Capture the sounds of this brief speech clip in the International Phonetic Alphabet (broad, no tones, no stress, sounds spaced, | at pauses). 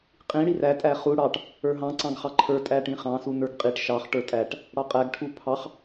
qʼ ĩ ɽ i r æ tʼ æ χ u ɽ ɑ ʈ | ə˞ ɦ ɑ̃ ǀ ɑ̃ ɡ χ ɑ ǃʰ ə˞ tʼ æ ʈ ĩ χ ɑ̃ s u n ə˞ ɡ qʼ i ʈ ʃ ɑ χ ʈ ə˞ tʼ æ ʈ | ɽ ɑ qʼ æ ɡ ʈʰ u pʰ ɑ χ